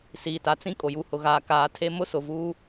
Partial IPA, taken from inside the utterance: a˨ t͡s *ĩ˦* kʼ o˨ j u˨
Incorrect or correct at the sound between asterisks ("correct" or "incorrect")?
correct